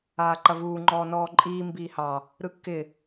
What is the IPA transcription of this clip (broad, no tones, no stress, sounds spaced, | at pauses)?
aː ǃ ɐ v uː ŋ͡ǃ ɔː n ɔː ǃʼ iː m b iː h ɑ | ɾ ɯ kː ɪ